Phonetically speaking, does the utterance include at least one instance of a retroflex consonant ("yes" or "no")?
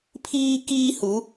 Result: no